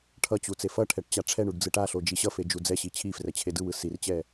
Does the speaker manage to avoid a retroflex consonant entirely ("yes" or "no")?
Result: no